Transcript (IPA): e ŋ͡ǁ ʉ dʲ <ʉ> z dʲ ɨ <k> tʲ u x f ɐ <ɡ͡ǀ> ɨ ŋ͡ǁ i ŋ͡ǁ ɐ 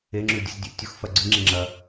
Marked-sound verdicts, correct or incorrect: incorrect, incorrect, correct

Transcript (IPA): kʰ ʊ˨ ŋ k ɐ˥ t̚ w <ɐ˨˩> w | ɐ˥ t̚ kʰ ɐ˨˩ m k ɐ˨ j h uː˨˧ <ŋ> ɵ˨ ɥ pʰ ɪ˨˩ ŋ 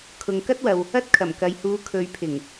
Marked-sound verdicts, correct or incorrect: incorrect, incorrect

